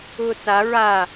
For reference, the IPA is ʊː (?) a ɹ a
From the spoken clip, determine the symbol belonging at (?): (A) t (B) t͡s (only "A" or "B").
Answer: B